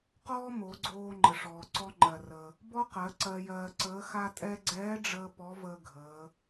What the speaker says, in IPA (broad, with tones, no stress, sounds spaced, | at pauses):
q ɔː˥ m o˩˧ ɡ͡ǀ oː˧ ŋ͡ǃ ə˩ ʂ ɔː˩ ǀ ɔ˧ ŋ͡ǃ ɜ˩ r ə˩ | b ɔ˥ q ɜ˩˧ ǀ ɜ˧ j ɜː˧ ǀ əː˧˥ x a˥ tʼ ɛ˥ ɡ͡ǀ ɛː˧˥ ɖ͡ʐ əː˧ p ɔ˧˥ v əː˧ ɡʱ əː˩˧